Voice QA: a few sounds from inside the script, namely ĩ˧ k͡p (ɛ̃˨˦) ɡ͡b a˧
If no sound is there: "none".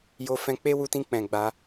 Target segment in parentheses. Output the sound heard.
ɛ̃˨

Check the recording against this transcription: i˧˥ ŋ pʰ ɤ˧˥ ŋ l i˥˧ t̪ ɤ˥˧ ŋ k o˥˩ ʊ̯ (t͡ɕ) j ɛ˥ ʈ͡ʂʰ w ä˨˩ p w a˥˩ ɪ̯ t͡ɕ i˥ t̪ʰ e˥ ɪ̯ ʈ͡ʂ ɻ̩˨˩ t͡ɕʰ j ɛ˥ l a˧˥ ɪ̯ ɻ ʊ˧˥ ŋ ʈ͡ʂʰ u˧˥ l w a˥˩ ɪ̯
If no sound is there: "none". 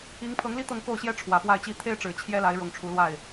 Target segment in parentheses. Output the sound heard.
ɕ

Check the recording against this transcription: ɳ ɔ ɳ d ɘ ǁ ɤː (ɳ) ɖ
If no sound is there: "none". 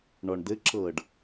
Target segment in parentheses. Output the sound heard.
none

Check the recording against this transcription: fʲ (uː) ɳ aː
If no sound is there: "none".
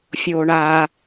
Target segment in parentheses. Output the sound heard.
oː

